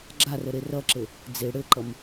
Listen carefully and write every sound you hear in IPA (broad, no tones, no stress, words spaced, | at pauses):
ɡ͡ǁarə ɾerʌǁɘ | d͡ze ɽɘǃʌm